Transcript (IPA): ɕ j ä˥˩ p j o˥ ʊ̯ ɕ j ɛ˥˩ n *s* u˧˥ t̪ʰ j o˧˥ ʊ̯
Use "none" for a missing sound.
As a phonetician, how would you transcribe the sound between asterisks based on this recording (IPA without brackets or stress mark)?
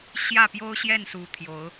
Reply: s